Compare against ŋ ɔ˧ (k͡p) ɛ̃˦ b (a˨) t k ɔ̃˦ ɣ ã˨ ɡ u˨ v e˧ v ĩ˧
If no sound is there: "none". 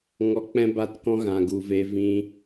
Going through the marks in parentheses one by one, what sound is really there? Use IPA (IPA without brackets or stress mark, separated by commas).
k͡p, a˦˨